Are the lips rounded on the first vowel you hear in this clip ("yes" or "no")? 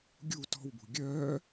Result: yes